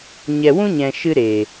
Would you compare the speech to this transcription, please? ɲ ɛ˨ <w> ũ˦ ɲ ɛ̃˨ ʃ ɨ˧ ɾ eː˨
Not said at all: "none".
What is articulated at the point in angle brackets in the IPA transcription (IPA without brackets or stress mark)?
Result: w